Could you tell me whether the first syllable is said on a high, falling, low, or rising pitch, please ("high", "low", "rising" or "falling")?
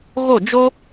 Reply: falling